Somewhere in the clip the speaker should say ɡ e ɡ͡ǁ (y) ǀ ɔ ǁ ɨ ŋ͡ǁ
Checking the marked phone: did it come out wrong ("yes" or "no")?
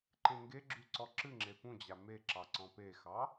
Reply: no